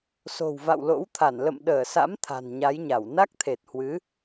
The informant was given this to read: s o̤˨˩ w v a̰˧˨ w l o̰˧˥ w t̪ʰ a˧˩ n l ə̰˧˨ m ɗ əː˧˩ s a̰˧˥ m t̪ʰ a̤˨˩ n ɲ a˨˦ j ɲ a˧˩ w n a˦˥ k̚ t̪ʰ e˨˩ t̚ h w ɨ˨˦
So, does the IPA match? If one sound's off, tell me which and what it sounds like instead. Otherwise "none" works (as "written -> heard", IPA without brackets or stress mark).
none